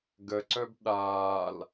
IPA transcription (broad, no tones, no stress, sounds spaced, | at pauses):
ɡ ə ǀ œ b ɗ aː l